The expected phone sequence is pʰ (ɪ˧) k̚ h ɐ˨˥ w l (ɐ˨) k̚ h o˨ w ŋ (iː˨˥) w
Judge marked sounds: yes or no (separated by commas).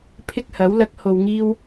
no, no, no